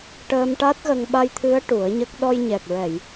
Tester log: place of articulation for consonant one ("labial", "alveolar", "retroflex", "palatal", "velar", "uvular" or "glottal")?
retroflex